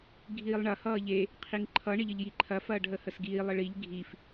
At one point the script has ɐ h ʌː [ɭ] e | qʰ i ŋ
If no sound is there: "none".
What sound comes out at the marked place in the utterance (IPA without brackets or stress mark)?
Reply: ʎ